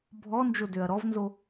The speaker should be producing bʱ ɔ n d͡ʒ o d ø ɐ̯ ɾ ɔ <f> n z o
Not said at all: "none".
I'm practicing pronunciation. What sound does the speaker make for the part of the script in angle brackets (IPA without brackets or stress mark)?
v